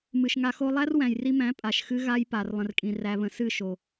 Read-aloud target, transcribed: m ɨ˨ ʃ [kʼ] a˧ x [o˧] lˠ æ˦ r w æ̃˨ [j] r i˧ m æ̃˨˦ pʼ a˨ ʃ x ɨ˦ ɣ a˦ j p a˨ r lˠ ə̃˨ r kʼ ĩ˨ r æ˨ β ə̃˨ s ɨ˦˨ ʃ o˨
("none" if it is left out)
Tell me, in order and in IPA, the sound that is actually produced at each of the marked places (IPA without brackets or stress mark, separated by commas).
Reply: ŋ, o˧, j